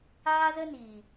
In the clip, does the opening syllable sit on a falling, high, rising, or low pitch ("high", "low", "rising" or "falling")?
high